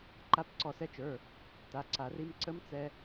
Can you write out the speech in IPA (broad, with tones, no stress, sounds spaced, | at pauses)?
ǃ a˦˥ p ǀ ɔ˧ s ɛ˦˥ t͡ʃ ə˞˩˧˩ | t a˩˧˩ ǀ a˨˩˦ r i˦˥ m ǀ ə˦˥ m t͡s ɛ˧